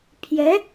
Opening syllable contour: rising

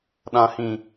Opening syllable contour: low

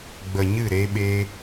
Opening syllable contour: low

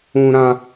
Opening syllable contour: high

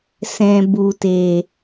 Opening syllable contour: low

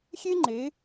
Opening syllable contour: high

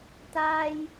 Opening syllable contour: high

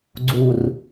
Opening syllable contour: low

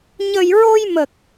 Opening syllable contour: low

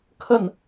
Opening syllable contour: falling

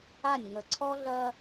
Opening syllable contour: falling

